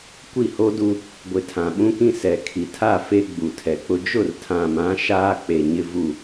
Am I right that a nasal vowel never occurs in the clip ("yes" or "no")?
no